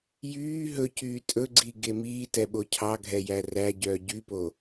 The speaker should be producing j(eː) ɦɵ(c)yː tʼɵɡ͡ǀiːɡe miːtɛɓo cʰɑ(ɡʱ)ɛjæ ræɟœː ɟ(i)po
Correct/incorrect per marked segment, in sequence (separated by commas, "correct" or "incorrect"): incorrect, correct, correct, incorrect